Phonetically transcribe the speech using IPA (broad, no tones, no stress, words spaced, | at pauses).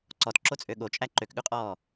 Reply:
ǀɔtǁot͡sʼø ɠot͡ʃʼæ ǃøkɠʉqʼɔː